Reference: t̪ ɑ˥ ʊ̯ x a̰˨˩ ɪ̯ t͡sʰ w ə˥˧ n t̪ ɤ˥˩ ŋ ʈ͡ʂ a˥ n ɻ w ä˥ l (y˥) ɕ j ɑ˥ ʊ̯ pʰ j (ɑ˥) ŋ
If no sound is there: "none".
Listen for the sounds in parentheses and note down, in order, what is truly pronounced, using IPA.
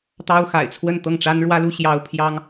u˥, ɑ˥

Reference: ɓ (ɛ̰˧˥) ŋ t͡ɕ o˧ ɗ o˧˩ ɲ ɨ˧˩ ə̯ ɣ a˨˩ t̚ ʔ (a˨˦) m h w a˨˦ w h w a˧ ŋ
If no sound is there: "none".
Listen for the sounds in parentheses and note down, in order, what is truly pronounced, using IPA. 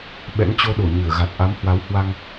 ɛ̰˧˥, a˨˦

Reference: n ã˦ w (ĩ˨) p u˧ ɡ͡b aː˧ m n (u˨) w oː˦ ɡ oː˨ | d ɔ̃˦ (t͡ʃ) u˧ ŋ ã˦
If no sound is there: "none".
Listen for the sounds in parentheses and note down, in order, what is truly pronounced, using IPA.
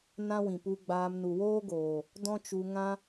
ĩ˨, u˨, t͡ʃ

